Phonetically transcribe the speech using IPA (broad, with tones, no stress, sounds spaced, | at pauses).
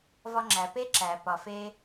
v ɒ˧ ŋ͡ǁ æ˩ p e˥ ǁ æ˩ p ɒ˩ f e˧